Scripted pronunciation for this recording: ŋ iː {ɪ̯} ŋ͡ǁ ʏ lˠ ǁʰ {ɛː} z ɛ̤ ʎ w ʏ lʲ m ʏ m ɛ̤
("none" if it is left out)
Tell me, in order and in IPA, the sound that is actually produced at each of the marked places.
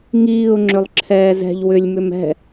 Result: ʊ̯, ɛː

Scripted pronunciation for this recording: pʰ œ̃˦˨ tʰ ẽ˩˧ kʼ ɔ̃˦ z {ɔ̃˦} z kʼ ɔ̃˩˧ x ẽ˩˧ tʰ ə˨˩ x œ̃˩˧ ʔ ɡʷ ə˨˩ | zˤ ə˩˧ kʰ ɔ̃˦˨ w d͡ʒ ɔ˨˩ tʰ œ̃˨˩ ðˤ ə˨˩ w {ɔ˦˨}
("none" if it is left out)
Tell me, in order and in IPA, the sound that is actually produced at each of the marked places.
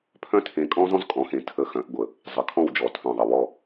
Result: ɔ̃˦, ɔ˦˨

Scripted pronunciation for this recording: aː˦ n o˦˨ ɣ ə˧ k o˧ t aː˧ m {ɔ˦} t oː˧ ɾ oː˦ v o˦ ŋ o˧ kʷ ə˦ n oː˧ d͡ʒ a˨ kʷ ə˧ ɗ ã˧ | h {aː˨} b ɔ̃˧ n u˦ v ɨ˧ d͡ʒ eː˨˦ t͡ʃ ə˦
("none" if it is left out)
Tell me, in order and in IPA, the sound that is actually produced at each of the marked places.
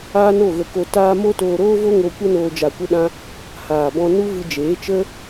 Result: o˦, aː˨

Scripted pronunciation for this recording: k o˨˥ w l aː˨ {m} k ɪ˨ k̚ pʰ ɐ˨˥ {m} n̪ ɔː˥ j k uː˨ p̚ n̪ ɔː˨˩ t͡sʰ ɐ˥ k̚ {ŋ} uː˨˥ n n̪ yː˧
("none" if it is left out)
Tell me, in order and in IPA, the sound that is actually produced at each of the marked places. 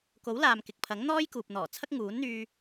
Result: m, ŋ, ŋ

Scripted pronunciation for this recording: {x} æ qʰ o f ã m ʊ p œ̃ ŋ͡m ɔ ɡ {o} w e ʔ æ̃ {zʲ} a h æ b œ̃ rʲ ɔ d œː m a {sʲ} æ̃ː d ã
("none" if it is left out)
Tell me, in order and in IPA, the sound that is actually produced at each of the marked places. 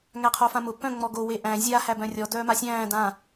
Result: ŋ, o, zʲ, sʲ

